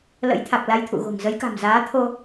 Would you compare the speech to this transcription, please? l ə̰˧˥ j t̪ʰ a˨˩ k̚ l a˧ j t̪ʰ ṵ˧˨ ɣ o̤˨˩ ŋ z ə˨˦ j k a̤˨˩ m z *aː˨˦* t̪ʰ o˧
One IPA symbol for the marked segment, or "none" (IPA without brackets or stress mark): aː˨˦